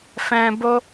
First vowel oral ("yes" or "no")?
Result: no